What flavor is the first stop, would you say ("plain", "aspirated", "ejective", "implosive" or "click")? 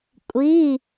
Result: ejective